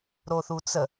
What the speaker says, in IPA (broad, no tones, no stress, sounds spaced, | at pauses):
ɾ o θ u t͡s ə